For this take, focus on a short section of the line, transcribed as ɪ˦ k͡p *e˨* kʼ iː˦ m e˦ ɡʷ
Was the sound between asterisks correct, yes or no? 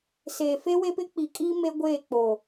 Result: no